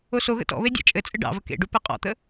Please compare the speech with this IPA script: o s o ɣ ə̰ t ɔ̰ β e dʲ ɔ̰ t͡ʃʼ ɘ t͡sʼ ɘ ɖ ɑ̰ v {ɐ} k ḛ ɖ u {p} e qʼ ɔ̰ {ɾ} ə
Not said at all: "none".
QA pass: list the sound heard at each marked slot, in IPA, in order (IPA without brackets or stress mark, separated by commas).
ə, p, t̪